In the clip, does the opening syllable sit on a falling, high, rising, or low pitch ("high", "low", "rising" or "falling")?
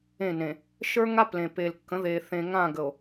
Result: falling